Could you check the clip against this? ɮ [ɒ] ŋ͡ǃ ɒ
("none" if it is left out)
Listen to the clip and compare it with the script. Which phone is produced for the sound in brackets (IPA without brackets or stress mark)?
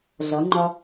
ʌ